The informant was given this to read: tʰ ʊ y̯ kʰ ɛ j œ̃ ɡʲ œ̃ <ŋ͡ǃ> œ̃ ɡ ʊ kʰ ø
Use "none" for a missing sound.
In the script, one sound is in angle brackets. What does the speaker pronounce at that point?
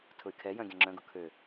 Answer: ŋ͡ǁ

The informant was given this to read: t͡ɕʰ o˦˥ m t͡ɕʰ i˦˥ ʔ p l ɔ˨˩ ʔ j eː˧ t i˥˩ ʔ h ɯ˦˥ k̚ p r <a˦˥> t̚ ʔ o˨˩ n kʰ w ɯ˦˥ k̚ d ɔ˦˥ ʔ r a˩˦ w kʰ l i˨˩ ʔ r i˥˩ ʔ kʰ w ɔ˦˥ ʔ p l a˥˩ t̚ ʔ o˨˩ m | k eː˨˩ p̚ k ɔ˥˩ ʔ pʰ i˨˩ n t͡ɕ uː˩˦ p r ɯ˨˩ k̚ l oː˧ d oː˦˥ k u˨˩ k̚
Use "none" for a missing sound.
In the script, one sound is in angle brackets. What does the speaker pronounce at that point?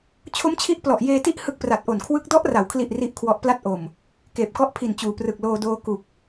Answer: a˨˩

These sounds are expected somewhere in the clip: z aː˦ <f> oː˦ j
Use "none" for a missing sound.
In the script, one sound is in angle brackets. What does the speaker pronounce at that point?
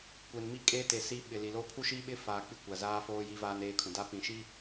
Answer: f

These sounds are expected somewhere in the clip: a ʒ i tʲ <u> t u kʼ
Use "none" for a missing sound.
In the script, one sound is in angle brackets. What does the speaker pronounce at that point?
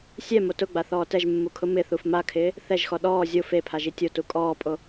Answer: o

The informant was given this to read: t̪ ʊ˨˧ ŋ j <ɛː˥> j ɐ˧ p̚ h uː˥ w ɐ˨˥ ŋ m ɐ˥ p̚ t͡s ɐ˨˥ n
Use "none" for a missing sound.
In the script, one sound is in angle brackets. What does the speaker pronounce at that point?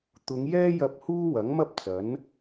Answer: ɛː˥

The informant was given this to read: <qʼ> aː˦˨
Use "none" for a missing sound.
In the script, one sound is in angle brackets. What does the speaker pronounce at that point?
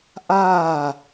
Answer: ʔ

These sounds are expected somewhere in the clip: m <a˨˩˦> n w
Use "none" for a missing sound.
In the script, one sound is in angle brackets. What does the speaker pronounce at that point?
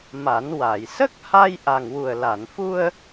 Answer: a˨˩˦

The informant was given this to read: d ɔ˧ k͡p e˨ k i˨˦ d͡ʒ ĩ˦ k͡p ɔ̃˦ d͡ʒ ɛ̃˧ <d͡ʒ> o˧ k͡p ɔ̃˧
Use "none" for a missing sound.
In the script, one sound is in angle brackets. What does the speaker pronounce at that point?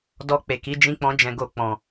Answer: ɡ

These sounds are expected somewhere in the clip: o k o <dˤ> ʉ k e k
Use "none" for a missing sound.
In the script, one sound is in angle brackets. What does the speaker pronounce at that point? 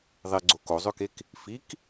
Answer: zˤ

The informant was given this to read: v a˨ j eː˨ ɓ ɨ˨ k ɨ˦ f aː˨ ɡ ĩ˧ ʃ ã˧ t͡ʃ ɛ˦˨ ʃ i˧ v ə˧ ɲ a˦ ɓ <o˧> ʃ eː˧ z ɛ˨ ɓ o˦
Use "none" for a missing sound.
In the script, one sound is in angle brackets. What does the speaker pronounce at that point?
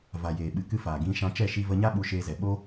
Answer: u˧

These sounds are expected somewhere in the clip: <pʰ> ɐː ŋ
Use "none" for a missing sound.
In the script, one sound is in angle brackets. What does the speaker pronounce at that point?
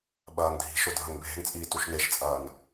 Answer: ɓ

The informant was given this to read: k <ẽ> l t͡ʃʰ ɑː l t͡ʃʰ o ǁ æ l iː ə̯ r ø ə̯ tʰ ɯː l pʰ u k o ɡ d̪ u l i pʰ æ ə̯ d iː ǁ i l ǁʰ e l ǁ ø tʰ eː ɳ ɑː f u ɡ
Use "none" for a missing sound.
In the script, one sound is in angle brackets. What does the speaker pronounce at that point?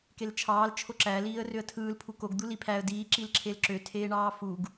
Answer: e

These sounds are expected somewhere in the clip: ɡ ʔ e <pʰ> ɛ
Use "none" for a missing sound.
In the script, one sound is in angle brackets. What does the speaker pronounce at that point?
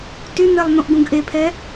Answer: pʰ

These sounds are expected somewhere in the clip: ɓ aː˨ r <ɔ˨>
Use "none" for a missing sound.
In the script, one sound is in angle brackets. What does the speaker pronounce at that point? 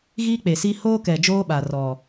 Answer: ɔ˨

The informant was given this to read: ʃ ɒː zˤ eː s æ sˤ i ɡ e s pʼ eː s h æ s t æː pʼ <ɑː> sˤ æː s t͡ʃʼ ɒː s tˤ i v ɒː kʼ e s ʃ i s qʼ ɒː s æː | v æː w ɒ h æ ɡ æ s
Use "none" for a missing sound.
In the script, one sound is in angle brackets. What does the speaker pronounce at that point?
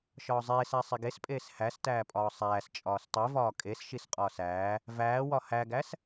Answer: ɒː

